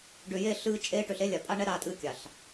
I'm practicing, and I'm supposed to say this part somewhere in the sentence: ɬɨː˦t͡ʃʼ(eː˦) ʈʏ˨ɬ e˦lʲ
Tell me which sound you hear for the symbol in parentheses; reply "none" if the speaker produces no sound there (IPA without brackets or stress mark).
eː˦